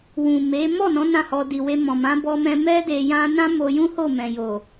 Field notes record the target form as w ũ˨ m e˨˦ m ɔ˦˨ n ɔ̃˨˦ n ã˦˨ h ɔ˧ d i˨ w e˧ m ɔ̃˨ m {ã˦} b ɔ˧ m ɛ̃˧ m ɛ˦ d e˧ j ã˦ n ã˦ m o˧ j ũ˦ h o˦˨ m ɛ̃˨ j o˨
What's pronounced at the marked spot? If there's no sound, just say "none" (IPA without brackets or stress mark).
ã˨˦